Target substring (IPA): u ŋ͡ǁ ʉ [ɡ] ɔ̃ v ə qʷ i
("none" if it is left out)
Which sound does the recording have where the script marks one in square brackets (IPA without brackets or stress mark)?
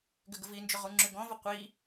ɡ